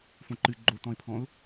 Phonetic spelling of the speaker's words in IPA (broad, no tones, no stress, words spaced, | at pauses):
fõǃɨ ɡ͡ǃot̪ɔ̃ɪ̯pʰɔ̃ʊ̯